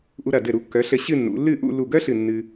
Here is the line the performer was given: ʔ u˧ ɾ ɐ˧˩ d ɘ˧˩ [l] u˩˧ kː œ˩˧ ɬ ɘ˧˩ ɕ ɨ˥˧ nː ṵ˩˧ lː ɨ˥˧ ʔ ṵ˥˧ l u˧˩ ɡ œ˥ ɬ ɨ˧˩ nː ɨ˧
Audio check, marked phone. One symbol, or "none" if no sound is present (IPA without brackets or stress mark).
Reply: ɾ